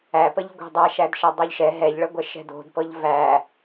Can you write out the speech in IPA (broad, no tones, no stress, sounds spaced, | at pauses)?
æ p ə ʎ ɡʷ ɛ̤ dˤ æ ʃ æ d ʃ ɛ dˤ o ʎ ʃ ɛ ɦ ɛ ʎ ɭ ə ɡʷ ɛ ʃ ɛ̤ d o̤ d p ɤ ʎ v æ